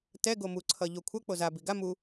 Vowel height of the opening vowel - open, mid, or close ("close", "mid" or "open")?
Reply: mid